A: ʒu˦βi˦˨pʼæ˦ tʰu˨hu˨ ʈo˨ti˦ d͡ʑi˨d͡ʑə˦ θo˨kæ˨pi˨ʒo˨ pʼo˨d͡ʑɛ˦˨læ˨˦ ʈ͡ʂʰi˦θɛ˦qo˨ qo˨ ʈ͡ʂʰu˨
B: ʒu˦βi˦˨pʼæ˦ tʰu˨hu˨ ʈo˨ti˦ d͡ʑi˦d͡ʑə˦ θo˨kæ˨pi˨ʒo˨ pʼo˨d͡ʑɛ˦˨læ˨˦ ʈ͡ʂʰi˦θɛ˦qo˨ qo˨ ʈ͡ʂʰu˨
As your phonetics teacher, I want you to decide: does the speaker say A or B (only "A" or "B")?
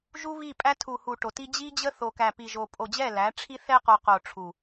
B